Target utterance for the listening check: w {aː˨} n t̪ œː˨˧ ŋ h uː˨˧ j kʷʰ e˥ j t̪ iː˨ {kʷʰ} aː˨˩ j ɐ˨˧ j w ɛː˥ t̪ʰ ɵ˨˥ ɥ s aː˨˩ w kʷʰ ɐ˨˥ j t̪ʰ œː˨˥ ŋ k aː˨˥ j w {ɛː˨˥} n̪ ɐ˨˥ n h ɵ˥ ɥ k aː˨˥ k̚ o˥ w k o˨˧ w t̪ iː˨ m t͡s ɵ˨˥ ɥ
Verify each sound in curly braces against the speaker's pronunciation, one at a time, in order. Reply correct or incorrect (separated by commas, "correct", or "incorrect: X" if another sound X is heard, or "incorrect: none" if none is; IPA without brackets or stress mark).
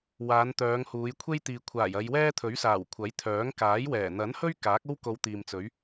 incorrect: aː˨˧, correct, incorrect: ɛː˨˩